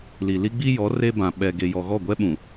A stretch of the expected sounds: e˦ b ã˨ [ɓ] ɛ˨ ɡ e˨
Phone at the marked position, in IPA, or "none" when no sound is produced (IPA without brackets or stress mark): ɓ